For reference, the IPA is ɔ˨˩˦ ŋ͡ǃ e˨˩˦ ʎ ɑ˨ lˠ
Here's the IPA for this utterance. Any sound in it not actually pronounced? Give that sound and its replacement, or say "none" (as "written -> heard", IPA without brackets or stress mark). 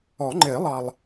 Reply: ʎ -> lˠ